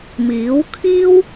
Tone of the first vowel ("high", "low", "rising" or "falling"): rising